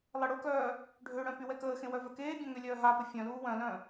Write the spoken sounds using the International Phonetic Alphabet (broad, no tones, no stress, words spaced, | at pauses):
lˠɛɽokœː | ɖʱøɽœ̃ pywɛkəːxẽ wœvœkeːbʲœ̃ ŋølʲœːɦapə fʲœ̃luː wœ̃lœ̃